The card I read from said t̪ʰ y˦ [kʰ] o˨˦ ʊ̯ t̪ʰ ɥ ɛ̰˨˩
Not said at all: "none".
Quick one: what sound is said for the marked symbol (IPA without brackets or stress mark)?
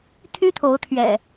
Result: t̪ʰ